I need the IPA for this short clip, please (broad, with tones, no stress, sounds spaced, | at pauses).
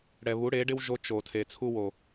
ɽ ɛ˨ β u˨˦ ɽ e˨˦ ɖ ɪ˦ w ʒ o˦ t͡ʃ o˨ tʰ e˨ t͡sʰ u˦ w o˨